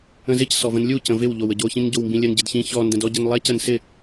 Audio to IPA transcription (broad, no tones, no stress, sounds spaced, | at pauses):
ə̃ z ɪ c s ɔ v ə̃ n lʲ u c ə̃ v ɪ w ʎ o w ə ɟ o ç ĩ n ɟ o w m b ĩ lʲ ə n ɟ ɪ d ç ĩ ç ɔ n d ə̃ d ɔ ɟ ə n lˠ ɛ c ə n s ɪ